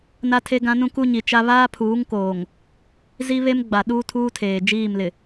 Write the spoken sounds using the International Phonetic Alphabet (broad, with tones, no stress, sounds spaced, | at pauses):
n a˦ tʰ e˦ ɡ ã˦ n ũ˦ k u˦ ɲ i˨ t͡ʃ a˦ β aː˦ pʰ uː˨˦ ŋ k oː˨ ŋ | z i˦ β e˦ m ɡ͡b a˨ ɗ uː˦ tʰ uː˦ tʰ eː˨ d͡ʒ iː˦˨ m l ɪ˨